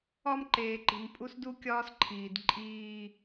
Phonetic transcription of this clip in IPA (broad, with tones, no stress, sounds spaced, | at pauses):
ɒ˦ m ǃ eː˨ ǃ i̤˨ m pʼ u˦ s d u˦ kʲ ɒː˦ s ǃʰ iː˨ d ǃʼ iː˦